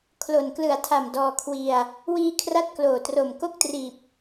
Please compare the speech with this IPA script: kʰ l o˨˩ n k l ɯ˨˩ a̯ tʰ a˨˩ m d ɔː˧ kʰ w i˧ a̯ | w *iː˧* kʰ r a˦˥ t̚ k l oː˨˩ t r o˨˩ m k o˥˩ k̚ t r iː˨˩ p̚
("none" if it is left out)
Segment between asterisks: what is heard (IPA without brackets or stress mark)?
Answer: iː˧